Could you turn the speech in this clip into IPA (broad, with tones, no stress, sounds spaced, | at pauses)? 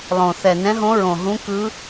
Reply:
lˠ õ˨˩ θ ɛ˨˩ n ɛ̃˧˥ ɦ õ˧˥ ɹ õ˨˩ ɦ ũ˧˥ k ɯ˧˥